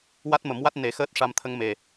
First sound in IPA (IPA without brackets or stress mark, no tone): w